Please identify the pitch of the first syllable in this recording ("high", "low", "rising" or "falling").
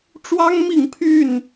high